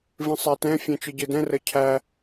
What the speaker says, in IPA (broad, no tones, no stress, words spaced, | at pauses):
vĩsˤætɛ̃ fʲɛ̃t͡ʃɨɟɨdɛ̃ rəcʰæ